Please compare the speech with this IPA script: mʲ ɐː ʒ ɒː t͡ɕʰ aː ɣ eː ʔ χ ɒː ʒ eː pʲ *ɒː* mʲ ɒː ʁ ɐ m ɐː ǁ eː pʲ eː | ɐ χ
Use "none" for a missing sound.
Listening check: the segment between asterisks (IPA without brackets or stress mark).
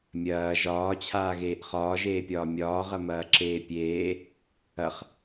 ɒː